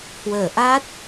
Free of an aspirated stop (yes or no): yes